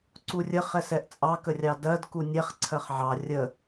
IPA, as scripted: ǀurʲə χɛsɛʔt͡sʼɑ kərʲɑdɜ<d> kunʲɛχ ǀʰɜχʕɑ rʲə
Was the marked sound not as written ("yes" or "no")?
no